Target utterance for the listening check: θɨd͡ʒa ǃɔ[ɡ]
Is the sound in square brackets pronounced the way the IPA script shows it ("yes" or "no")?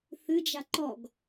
yes